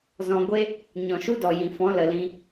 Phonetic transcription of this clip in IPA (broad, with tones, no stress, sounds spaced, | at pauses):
z ɔ̃˧ ɡʷ e˦ | ɲ ɔ̃˨ ʃ u˦ d ɔ˨ j ĩ˨ f ɔ̃˨˦ l ə˨ l ĩ˧